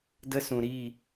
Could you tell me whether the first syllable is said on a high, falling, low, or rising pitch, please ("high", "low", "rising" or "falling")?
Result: high